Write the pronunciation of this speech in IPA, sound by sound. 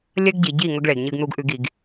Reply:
lʲ ɐ˦ ɡ ɟ i˨ ɟ i˦˨ ŋ ɵ˦ ɡ ɭ e˨ ɡ ɲ ɨ˦ ɡ n̪ u˦ ɡ ʔ ʉ˦ ɡ i˨˦ ɡ

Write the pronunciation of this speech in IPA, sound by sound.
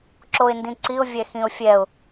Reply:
ǁ o ɪ̯ n d ĩ ǀ i ʊ̯ vʲ ɛ x ĩ ʊ̯ fʲ ɛ ʊ̯

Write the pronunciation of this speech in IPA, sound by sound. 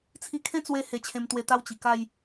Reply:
t͡sʰ i˧ kʰ ẽ˦ t͡s w e˧ h e˧ t͡ɕʰ ẽ˧ m t̪ w e˧ t̪ a˦ w t͡ɕ i˨˩ k a˥˧ j

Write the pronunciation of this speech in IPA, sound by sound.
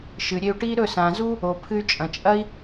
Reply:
ʃ ɨ˨ ɾʲ e˧ u̯ ʈ i˦ ɾ ɵ˦˨ s ã˨ z u˦ | o˨ pʰ ɨ˧ y̯ t͡ʃʼ ɐ̃˨ t͡ʃʼ ɐ˦ i̯

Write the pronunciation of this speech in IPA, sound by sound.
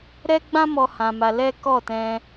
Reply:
ɾ ɛ˦ ɡ͡b ã˦ m ɔ˧ h ã˧ m a˧ l ɛ˦ k ɔ˦˨ t ɛ̃˧

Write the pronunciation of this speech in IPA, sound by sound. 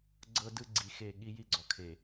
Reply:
ɡ͡ǀ ɤ˦ d ɯ˦ ɡ͡ǀ i˨ x e˦˨ ɠ i˦ j i˦ ɡ͡ǀ ɔ˨ kʰ e˨

